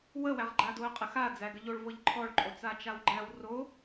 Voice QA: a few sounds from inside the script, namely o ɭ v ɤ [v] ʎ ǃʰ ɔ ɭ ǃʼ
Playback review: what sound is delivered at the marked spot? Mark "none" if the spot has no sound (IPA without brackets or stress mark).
none